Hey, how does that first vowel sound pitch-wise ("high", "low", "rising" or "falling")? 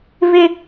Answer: high